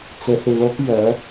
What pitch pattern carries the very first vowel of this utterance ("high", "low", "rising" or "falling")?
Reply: low